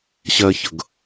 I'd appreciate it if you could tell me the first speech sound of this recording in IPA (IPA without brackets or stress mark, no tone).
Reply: ɕ